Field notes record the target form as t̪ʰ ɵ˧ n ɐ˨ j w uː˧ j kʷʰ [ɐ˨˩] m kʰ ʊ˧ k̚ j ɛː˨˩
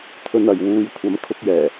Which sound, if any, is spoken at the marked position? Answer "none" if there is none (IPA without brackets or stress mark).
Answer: ɐ˨˥